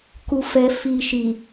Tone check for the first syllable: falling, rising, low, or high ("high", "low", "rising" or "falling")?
low